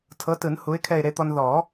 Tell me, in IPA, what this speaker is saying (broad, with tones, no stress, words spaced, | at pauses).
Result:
tʰɤ˨˥tɯ˨˩˦n hu˨˥ɪ̯kʰɛ˦˨ɪ̯ɾe˦t̪ɔ˦n ðɔ˨˩˦